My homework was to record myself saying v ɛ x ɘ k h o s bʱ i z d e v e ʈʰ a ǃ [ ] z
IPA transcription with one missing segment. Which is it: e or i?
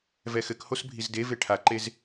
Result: e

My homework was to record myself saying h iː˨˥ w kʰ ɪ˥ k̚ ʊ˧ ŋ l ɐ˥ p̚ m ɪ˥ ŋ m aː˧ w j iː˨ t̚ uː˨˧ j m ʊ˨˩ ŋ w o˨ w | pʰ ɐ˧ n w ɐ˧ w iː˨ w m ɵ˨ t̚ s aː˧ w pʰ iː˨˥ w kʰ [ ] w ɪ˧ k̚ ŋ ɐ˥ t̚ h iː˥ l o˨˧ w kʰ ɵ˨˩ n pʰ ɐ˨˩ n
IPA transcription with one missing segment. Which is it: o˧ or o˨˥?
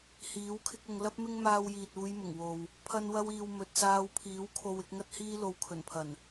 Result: o˧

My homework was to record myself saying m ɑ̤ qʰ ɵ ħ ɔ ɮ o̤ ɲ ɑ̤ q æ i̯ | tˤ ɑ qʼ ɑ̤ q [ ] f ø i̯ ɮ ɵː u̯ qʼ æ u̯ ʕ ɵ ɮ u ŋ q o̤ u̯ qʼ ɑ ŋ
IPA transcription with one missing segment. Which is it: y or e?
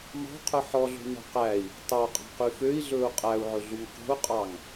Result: y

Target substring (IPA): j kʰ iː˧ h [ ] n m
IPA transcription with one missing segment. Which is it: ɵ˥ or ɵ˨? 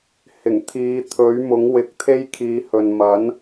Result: ɵ˨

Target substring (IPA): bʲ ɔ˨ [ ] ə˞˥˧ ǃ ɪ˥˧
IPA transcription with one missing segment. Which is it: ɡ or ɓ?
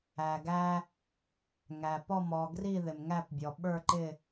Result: ɓ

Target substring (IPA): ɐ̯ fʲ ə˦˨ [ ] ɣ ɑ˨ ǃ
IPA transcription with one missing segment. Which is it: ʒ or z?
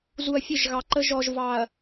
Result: ʒ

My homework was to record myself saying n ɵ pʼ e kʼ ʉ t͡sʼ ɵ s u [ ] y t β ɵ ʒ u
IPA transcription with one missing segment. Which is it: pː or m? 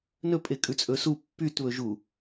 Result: pː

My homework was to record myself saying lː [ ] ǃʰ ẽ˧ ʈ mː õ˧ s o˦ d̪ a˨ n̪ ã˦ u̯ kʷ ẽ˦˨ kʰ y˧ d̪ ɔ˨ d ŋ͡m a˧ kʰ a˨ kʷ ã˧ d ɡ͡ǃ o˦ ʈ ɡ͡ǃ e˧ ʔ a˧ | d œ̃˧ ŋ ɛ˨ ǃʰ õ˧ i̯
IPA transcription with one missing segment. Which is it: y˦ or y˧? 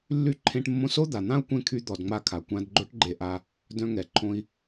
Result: y˧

